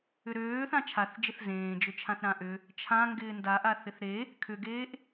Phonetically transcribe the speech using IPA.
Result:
ʏ ɾ øː θ ã t͡ʃʰ a θ d͡ʒ ɪ θ z ẽː d͡ʒ ʏ t͡ʃʰ ã θ ɾ ã ʔ ʏ | t͡ʃʰ ã ŋ ɡ ɪː n d a ʔ a θ ɪ θ ɾ e | kʰ ʏ ɡ eː ʔ

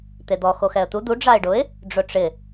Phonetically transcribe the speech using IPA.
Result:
t̪ e d̪ ɔ x o x ɛ ə̯ t̪ u d̪ u ɖ͡ʐ a ɪ̯ ɖ ʊ ɪ̯ | ɖ͡ʐ ʊ ʈ͡ʂ ɪ

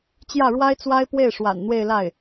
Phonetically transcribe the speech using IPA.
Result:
t͡ɕ j ä˥˩ ɻ w a˥ ɪ̯ t͡s w a˥ ɪ̯ p w e˥˩ ɪ̯ ʂ w a̰˨˩ n n̪ w e˥˧ ɪ̯ l a˥˩ ɪ̯

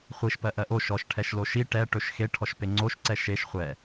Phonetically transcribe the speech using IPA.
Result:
χʷ i ʃ p ɜ ʔ ɜ ʔ o ʃ ɔ ʃ ʈʰ ɛ ʃ l o ʃ i ʈ ɛ ʈ ɵ ʃ x e ʈʰ ɔ ʃ p e ŋ͡ǀ o ʃ ǀ ɛ ʃ e ʃ χʷ ɛ

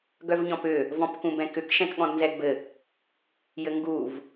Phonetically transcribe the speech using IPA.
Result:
ɡ œ v ɲ ɔ̃ p ʏ | v ɔ̃ p k ũ b ɛ̃ k ʏ k ʃ ɛ̃ k ɠ ɔ̃ d n z ɛ ɡ b ɘ | j ɘ ŋ ɡ u v

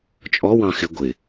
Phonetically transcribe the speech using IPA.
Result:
t͡ʃʼ ɔ w ɑ̃ x ɪ ɡʷ ɪ

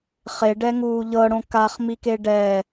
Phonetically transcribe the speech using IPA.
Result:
χ e ɖ ɛ ŋ uː ʎ ɤ ɽ õ k a χ m i k e ɖ ɛ

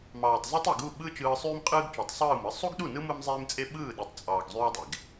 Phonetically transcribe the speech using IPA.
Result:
m ɑː˨ tˤ z o˦ tˤ e˨ ɡ u˦˨ ɓ ɯ˦ t͡ʃ ɯː˧ sˤ yː˦ m qʼ ɯː˦ ɡ t͡ʃ o˨˦ tˤ sˤ ɯː˦˨ m ɯ˧ sˤ u˦ ɡ ɗ u˦˨ n ɯ˦ m ɯ˦ m zˤ eː˦ m t͡sʼ e˦ ɓ ɯː˦˨ ɗ e˨ tˤ t͡sʼ ɑː˨ ɡ zˤ yː˦ dˤ e˨ ɡ

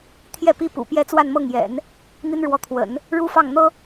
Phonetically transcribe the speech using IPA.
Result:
t̪ʰ j ɛ˥˩ p i˥ p ṵ˨˩ p j ɛ˥˧ t͡s w a˥˧ n m ɤ˥˩ ŋ j ɛ̰˨˩˦ n | n̪ i˥ n ɻ w ɔ˧˥ t̪ʰ w ə̰˨˩˦ n | ɻ u˥ f ɑ˥˩ ŋ n̪ ɤ˥

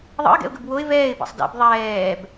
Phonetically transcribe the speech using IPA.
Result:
ðˤ ə̰ ɪ̯ ɡ ɛ̰ ʊ̯ ɡ ə b w o ɪ̯ v ɛː ɪ̯ b ɛ̰ sˤ d ɛ̰ b ðˤ ɛː b

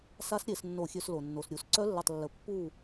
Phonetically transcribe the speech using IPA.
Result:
s a˦˥ s ɾʲ e˧˩˧ s nː o˧˩˧ xʲ ø˧˩˧ s l o˩ nː o˩ s ɾʲ u˧˩˧ s ǀ œ˦˥ lː ə˦˨ tˤ lː ə˧˩˧ pː u˦˨

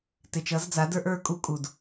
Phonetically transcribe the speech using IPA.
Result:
t ɪ˨ t͡ʃ ʌ˨˦ z d͡z a˨˦ d ə˞˦ ʔ ə˞˦˨ kʼ u˦ kʼ u˨ d

